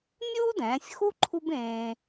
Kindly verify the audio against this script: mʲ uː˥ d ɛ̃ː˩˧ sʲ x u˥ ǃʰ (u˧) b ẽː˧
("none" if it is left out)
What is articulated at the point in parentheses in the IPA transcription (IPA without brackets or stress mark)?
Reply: u˥